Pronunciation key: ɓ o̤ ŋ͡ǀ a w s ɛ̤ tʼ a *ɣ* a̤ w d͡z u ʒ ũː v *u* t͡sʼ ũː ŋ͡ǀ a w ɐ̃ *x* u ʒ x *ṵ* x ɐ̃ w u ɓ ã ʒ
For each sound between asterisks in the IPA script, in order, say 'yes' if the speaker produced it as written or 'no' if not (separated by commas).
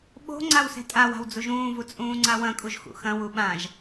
no, yes, no, yes